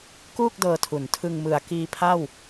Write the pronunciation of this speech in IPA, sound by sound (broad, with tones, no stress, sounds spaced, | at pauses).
k uː˥˩ k̚ d ɤː˧ tʰ u˨˩ n tʰ ɯ˧ ŋ m ɯ˨˩ a̯ k iː˧ pʰ a˥˩ w